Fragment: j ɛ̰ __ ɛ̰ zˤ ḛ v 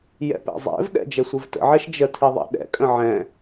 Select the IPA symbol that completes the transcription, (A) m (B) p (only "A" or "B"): B